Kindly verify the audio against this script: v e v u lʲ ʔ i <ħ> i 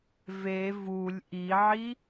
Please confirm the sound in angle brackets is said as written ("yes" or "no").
no